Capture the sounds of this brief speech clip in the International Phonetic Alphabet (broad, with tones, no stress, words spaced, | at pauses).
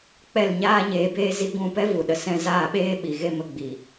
k͡pɛ˦˨lɲaː˦ɲeː˧beː˦ zi˧ɡʷũ˦˨pɛ˦ vu˨ ɗə˨sɛ̃˧zaː˦˨ɓeː˦ ɓi˨ ɣe˧mə˧ ɡ͡bi˨